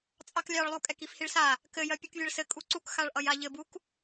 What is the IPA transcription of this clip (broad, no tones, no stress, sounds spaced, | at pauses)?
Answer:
t͡sʼ ɑ k lʲ ɑ ɭ lˠ u kʼ ɛ k i f h i ɭ s a | k ɘ j ɜ pʲ u k vʲ ɛ ɭ s ɘ kʼ u ǀ u k x a ɭ ʔ ʌ j a ʎ ɘ b u k